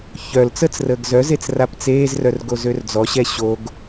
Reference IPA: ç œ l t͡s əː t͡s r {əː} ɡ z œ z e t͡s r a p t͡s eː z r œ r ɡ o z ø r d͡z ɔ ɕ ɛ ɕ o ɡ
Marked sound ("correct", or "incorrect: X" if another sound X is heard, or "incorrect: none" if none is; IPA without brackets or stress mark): correct